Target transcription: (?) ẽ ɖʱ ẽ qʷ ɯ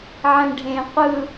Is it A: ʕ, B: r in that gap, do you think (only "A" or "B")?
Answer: A